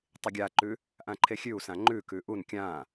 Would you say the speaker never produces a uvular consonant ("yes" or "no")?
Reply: yes